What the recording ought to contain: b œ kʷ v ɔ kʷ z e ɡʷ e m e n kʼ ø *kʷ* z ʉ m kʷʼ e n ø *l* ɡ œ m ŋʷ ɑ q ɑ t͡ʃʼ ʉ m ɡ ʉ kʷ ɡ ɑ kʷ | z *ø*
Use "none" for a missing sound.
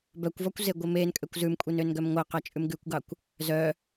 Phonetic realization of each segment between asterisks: kʷ, n, œ

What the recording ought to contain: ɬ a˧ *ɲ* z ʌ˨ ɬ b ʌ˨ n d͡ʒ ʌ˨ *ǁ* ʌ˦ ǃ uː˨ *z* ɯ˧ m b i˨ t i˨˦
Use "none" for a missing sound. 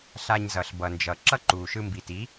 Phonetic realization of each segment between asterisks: ɲ, ǁ, ʃ

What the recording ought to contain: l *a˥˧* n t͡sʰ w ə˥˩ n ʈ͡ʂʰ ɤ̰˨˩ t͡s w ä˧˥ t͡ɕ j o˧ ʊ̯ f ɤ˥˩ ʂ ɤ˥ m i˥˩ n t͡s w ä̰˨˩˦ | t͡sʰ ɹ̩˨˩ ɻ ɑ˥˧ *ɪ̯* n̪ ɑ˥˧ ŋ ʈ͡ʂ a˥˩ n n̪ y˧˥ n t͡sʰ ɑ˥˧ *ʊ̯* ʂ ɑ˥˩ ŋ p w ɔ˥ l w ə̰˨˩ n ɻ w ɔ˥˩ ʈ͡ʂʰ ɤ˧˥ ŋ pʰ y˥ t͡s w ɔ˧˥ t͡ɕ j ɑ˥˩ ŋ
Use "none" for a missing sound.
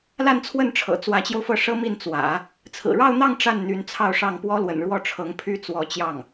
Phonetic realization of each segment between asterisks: a˥˧, ʊ̯, ʊ̯

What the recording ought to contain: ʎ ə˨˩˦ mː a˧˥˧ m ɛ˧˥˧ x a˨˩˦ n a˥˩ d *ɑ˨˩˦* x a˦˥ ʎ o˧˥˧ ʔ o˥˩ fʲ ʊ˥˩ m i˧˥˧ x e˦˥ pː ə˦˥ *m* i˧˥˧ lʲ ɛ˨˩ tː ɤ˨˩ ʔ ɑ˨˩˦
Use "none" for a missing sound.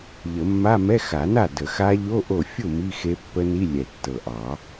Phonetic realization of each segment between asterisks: ə˨˩˦, n

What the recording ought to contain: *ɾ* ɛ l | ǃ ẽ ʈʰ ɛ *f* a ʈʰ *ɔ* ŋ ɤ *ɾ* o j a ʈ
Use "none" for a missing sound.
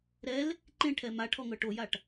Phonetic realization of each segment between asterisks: ɾ, m, ɔ, ʈ

